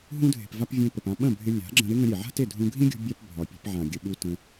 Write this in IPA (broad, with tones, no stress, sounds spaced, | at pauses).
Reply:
ɦ ũ˧ dʱ e̤˨ p v a˧ p vʲ ẽ˧ p ə˨ p ã˧ ɓ ə̃˦˨ bʱ ɪ˧ lʲ a̤˨˦ ɡ͡ǁ ə̃˧ ɾ ɪ˦ ŋ ə̃˧ ɾʲ e˨ ʕ a̤˦ t e˦˨ dʱ ũ˧ ɡʱ ĩ˦ ɡʲ ṳ˧ bʲ a˦ p bʱ ɒ˨ pʲ e̤˧ p ʕ ã˨ ɡʲ ə˧ ɓ u˦ t ə̃˧